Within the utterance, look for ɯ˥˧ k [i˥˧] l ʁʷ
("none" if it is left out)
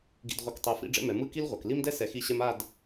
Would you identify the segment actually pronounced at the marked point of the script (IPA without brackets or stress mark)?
i˥